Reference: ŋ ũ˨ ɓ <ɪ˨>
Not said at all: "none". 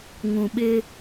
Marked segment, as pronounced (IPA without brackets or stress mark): ɪ˦